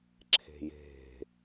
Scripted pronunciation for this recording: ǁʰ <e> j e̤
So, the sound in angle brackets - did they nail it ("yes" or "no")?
no